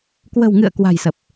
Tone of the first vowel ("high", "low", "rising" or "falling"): low